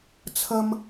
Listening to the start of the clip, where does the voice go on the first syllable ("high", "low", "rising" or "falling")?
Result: low